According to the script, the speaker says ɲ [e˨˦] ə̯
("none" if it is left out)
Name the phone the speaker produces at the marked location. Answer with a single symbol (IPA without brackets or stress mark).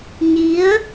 i˨˦